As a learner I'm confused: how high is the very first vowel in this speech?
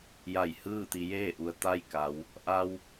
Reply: low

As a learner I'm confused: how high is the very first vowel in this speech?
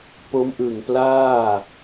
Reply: mid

